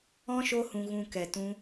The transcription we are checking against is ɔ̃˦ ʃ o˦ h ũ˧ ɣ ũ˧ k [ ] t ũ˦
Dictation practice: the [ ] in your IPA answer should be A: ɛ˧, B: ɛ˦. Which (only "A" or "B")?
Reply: A